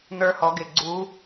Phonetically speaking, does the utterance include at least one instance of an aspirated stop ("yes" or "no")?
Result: no